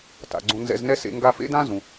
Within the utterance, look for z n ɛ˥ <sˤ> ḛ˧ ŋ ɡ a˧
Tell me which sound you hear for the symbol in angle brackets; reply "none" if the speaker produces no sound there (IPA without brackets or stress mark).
s